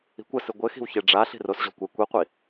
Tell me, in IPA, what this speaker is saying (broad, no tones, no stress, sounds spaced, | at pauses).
i̤ kʷ ɐ s ɨ ɡʷ ɘ x i̤ w ç e ɖ͡ʐ a ɬ i̤ r o s ʑ ɔ̤ kʷ ɛ kʷ i qʷ i